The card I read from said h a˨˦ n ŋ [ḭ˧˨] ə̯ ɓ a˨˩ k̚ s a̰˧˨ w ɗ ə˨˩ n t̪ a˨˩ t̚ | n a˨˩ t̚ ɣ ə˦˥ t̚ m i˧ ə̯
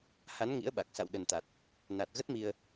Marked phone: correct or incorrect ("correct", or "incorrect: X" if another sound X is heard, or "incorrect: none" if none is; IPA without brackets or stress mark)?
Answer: incorrect: ḭ˧˥